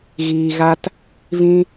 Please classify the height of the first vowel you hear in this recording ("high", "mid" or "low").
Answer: high